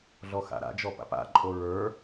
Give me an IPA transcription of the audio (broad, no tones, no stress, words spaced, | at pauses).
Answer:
ɮɔxa̰ɾa̰d͡ʒɔ pa̰pa̰ǃʼo ɹə˞